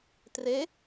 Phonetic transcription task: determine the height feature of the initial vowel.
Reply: mid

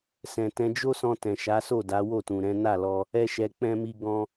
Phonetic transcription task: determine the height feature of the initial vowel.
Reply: mid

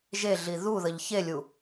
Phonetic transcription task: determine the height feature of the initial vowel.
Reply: mid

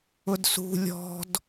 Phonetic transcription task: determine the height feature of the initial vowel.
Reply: high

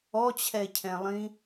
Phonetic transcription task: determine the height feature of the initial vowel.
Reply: mid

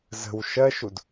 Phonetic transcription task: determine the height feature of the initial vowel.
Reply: mid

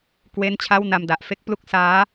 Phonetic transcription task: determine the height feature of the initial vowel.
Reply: mid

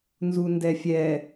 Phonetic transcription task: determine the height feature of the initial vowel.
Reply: high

